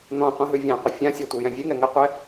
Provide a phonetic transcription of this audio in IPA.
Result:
n̪ ɔ̃ qʷ ĩ ɦ ʉ vʲ ã qʷ ə fʲ ã sʲ a tʷ i j ɛ̃ vʲ ʉ ŋ ɛ ŋ ə qʷ ɛ

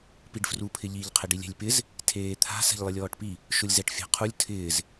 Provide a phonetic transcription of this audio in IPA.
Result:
p i ɖ f r u pʰ ɪ ʎ i ʎ qʰ ɪ ɖ i lʲ ɛ̤ lʲ p ɪ z | tʰ eː t̪ʰ a̤ s ɛ̤ ʎ lˠ ɪ lʲ ɔː ʈ p i | ʃ ʊ lʲ z ɛ ʈ fʲ a̤ qʰ u lʲ tʰ ɪː z

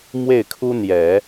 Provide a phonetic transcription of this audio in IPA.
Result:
m w e˥˩ ɪ̯ kʰ u˥ n̪ j ɛ˨˩˦

